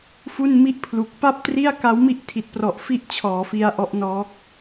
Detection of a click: absent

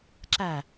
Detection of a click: present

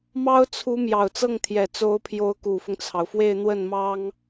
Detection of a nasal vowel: absent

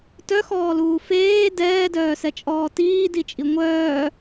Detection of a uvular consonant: absent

